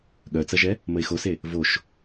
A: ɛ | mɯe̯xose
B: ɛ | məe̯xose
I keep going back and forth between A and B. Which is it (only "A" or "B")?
B